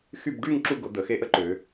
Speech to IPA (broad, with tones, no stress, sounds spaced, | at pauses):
x y˥˧ b ɖ y˥˧ ŋ ǁ u˧ ɡ ʊ˩˧ d̪ ə˩˧ x e˧ ʔ ə˥ ǃ ʏ˩˧